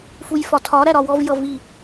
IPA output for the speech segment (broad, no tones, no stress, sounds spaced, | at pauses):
f u j f ɒ tʰ ɒ ɾ æ ɾ ɒ w ɔ v j ʌ v i